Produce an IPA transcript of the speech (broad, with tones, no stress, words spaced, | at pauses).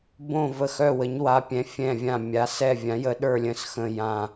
bõ˦˨ və˦˨xœ˦˨wə˨˦ɲ wa˨˦pʲɛ̃˨˦fʲɛ̃˦˨vʲã˦˨ mʲa˨˦sɛ˦˨ vʲã˨˦jə˨˦ɗə˞˦˨lʲə̃˦˨s xə̃˦˨ jã˦˨